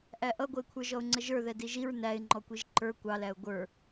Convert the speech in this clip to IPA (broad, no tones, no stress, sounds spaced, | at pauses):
ʔ æ ʔ ʌ ɡʷ ə ɪ̯ kʷʰ ə˞ ʒ ɔ ʊ̯ ŋ͡ǀ ə ʒ ə˞ ð ɛ d i ʒ i ɹ n æ ɪ̯ ŋ͡ǃ ɔ kʷ i ʒ ǃ ə˞ kʷ ɑ l æ ʊ̯ ɡʷ ə˞